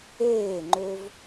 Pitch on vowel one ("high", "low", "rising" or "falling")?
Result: falling